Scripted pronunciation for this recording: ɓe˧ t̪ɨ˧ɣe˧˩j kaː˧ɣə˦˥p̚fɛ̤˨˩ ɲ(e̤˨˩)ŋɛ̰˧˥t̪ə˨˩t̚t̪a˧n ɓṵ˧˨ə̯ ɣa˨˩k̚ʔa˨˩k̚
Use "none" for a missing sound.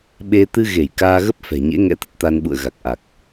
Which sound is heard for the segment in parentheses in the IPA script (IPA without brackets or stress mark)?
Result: ḛ˧˥